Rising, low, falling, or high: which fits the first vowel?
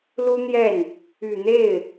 high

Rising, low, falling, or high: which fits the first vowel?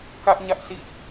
high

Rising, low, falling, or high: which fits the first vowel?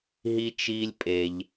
high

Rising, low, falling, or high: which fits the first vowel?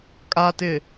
low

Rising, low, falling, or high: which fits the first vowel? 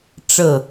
falling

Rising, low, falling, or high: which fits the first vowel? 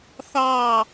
falling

